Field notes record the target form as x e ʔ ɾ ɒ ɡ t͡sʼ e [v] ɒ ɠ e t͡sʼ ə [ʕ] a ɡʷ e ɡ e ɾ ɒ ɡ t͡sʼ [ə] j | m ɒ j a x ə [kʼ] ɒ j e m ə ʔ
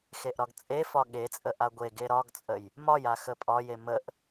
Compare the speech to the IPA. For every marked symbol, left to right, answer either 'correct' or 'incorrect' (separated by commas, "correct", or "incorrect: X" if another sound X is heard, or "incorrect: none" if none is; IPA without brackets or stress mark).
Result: incorrect: f, incorrect: ʔ, correct, incorrect: pʼ